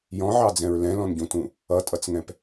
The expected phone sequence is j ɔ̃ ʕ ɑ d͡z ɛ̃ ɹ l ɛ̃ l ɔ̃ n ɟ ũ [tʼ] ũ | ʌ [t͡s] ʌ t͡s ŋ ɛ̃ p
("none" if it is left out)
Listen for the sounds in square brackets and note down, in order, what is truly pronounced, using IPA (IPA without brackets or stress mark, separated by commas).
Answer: t, tʼ